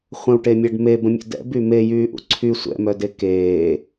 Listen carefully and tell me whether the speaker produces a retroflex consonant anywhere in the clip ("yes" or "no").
yes